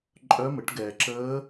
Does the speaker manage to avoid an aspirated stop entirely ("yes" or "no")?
yes